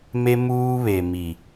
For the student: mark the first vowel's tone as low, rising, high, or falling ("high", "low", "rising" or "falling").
high